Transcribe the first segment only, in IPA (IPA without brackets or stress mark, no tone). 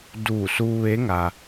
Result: d